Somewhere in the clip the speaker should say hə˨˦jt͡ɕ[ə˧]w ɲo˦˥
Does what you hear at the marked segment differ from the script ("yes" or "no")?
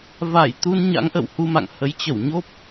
yes